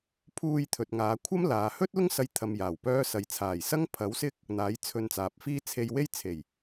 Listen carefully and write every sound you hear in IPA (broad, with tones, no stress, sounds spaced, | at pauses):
pʰ uː˧ j t̪ʰ ɵ˨ t̚ ŋ aː˨˧ kʷʰ ɐ˥ m l aː˨ h ɵ˥ t̚ l ʊ˥ ŋ s ɐ˧ j t̪ʰ ɐ˧ m j aː˨˩ w p œː˥ s ɐ˨ j t͡sʰ aː˨˩ j s ɐ˥ ŋ pʰ ɐ˨˥ w s ɪ˥ k̚ | n̪ aː˨˥ j t͡sʰ ɵ˧ n t͡s aː˨ p̚ f iː˥ t͡sʰ e˧ j w e˥ j t͡sʰ e˨˩ j